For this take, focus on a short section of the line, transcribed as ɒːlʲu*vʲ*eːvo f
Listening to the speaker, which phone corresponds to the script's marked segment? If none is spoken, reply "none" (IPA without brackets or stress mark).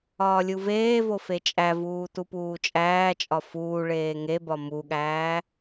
v